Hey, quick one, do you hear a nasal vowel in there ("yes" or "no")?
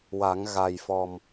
no